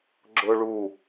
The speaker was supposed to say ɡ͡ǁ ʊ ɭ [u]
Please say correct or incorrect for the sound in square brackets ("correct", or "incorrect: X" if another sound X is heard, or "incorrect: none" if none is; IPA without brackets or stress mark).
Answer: correct